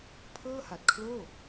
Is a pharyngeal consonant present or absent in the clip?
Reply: absent